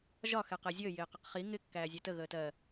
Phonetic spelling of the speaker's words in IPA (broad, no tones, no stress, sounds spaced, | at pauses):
ʒ ɒ x ɛ q ɛ zʲ əː j ɪː q ə q χ i ŋ ɪ kː æː zʲ ɛ t ə ɣ əː t ɜ